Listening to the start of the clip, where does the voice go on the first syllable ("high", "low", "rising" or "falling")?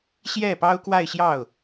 falling